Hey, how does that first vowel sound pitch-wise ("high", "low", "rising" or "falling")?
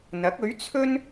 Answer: rising